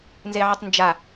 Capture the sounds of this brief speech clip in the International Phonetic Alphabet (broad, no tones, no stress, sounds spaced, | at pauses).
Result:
n z e ʕ ɪ tˤ n d͡ʒ a